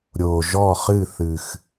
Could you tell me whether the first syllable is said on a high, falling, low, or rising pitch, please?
low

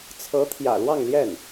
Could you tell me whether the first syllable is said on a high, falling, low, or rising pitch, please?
rising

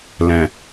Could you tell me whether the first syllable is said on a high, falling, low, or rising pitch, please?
low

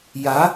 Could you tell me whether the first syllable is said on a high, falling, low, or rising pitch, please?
rising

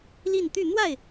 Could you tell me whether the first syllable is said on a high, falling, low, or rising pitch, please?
falling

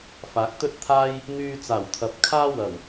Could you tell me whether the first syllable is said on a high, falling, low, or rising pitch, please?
rising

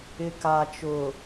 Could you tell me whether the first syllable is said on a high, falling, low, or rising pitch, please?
low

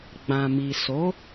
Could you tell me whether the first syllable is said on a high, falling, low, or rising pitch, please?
low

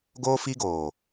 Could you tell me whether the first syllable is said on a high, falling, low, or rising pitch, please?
high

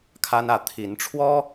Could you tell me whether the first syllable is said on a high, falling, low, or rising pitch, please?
high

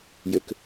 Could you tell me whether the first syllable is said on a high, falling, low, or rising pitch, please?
low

